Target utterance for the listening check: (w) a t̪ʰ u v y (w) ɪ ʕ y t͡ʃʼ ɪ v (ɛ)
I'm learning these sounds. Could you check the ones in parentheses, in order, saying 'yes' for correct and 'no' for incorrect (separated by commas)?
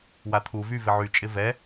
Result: yes, no, yes